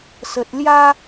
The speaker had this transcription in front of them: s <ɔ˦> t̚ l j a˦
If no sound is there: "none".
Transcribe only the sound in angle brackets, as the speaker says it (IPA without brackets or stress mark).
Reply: ə˦